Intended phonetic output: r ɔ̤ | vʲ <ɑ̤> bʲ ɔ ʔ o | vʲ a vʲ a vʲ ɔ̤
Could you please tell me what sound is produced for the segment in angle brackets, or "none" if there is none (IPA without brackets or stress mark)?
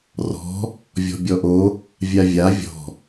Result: ɔ̤